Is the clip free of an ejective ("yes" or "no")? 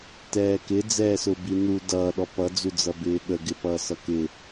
yes